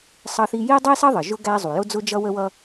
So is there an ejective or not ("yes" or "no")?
no